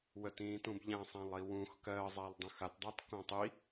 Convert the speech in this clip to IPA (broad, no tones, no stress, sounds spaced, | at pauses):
w ə t ĩː t ũ b ʎ ã sˤ ã lˠ i w ũ x k ɜ zˤ a lˠ dˤ ũ x a t dˤ a t k õ tˤ i